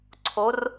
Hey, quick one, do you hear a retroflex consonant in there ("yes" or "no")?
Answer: no